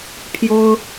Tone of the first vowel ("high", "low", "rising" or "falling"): high